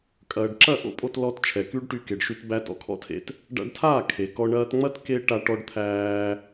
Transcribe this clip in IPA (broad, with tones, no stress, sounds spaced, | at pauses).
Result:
kʼ ɐː˨ ɖ ǁ ɐ˦˨ ʔ o̰˦ pʼ o˧ t l ɔ˧ t t͡ʃʰ ɛ˨ k y˦ ɖ ʈ y˧ k e˨ ɖ ʃ y˧ t b æ˧ t ɔ̰˨ kʰ ɔ̰˦ tʰ ḛ˧ t | ɖ a̰˧ ɖ tʰ aː˦˨ kʰ e˨ k ɔ˧ ɳ ɐː˧ t ŋ͡m ɐ˦ t k e˧ ʈ a˧ ʈ ɔ˧ ɖ t̪ʰ æː˧